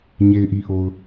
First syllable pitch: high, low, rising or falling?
low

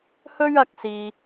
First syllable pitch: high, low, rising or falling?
high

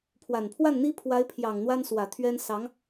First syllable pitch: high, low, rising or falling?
low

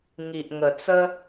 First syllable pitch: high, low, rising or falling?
low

